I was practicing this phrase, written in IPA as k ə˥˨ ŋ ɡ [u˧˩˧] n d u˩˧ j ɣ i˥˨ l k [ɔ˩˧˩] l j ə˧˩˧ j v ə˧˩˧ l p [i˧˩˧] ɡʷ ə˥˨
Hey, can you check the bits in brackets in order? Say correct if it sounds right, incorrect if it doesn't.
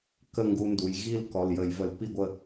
incorrect: u˧, correct, incorrect: i˥˨

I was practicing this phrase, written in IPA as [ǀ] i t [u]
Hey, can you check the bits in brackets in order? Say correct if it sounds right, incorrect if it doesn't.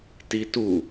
incorrect: t, correct

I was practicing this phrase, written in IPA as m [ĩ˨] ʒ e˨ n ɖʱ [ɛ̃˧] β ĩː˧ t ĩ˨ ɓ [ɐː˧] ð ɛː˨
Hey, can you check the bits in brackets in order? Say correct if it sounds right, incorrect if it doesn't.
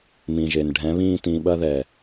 correct, incorrect: ɛ̃˨˦, incorrect: ɐ˧

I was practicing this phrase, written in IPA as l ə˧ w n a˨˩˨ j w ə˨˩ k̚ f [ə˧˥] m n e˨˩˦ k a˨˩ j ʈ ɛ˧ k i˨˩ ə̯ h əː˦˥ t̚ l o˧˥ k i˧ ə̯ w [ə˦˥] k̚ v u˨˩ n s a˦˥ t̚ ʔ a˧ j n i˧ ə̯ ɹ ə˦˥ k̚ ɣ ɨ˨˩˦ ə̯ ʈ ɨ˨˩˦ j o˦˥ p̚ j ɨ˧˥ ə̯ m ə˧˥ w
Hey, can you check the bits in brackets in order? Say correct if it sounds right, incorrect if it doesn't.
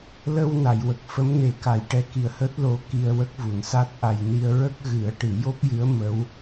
correct, correct

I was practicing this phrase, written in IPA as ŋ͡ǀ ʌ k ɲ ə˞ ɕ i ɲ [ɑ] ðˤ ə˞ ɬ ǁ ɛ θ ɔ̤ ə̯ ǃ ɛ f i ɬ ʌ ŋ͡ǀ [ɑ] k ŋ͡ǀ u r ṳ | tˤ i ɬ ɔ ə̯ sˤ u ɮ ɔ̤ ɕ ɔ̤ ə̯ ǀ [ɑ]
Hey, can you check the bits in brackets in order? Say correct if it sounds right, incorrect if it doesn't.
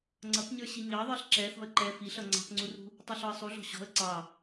correct, incorrect: ɑ̤, correct

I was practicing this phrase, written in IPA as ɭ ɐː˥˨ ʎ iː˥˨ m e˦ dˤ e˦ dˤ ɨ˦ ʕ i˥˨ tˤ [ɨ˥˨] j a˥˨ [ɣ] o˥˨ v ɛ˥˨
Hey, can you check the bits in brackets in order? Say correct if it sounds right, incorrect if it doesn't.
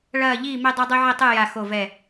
correct, incorrect: x

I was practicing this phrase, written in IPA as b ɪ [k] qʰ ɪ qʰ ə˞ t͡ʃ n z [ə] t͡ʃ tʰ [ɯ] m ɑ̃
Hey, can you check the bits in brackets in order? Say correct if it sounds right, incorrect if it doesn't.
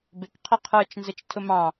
correct, correct, incorrect: ʊ

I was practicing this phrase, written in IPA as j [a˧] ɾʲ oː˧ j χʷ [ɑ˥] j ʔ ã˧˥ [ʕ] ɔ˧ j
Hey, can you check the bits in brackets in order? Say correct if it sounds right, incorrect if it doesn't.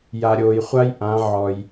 correct, incorrect: a˥, correct

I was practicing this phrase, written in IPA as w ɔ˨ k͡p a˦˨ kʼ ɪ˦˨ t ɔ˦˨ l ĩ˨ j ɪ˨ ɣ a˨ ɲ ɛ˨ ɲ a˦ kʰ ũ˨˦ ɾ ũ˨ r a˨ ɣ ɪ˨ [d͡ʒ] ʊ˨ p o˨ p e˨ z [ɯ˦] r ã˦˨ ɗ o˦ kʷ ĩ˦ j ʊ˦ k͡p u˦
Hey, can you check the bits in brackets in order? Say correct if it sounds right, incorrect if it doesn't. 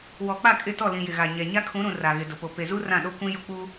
incorrect: d, incorrect: u˦

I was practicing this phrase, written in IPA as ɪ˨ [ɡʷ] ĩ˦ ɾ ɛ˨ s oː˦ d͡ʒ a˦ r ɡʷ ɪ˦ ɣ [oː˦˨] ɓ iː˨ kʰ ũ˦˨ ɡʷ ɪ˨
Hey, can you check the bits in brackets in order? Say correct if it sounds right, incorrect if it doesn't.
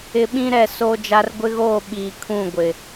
incorrect: ɓ, correct

